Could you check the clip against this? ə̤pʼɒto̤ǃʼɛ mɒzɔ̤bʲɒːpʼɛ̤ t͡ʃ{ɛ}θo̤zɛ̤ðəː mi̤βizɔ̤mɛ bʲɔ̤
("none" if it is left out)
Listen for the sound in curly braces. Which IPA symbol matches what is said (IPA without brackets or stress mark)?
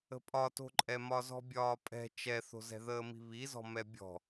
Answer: ɛ